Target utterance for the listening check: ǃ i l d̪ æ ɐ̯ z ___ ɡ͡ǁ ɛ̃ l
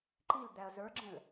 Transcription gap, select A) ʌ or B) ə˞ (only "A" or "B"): B